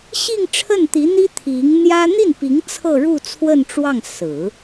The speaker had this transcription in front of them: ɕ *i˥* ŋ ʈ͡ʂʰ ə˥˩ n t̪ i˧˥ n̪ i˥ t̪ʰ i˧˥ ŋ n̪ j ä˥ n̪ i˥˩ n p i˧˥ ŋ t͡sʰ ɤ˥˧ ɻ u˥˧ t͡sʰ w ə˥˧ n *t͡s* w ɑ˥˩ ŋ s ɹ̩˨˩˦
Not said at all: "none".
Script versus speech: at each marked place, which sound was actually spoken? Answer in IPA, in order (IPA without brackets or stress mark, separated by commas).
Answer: i˥˧, ʈ͡ʂ